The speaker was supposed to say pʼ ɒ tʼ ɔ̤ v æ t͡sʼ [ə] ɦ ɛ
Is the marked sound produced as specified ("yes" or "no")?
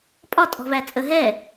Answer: yes